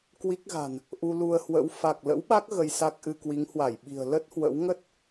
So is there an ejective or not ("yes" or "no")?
no